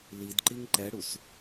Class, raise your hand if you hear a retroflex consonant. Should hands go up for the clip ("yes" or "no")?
yes